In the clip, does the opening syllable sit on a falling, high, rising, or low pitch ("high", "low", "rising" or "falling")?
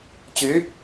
rising